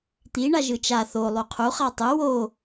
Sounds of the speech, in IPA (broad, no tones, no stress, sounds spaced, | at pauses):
t̪ i ɳ a ʒ ɯ t͡ʃ a θ o lˠ u qʰ u χ a tˤ ɯ w o